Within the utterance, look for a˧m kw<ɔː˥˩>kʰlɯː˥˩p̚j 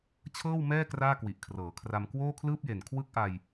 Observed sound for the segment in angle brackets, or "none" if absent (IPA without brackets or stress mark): oː˥˩